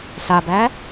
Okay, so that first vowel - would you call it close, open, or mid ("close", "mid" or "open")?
open